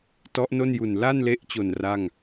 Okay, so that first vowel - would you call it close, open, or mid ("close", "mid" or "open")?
mid